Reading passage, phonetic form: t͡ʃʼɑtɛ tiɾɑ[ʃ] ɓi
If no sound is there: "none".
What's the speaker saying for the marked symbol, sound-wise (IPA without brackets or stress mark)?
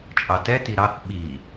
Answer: θ